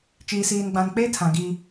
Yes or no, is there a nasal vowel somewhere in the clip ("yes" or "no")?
yes